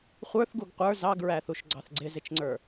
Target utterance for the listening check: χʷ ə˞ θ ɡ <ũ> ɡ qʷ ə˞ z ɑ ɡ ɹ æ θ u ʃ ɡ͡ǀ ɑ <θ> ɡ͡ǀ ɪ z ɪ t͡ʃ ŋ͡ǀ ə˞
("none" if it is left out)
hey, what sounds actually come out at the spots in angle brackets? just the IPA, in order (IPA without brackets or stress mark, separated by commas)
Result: u, θ